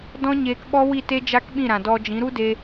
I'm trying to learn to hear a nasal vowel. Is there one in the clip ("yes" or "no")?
yes